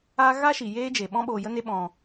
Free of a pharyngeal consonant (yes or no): yes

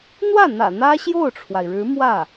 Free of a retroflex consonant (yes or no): no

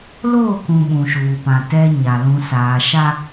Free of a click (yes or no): yes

